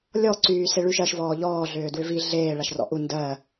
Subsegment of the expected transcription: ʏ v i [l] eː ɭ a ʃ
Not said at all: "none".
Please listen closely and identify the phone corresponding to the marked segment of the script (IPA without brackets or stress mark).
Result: ɮ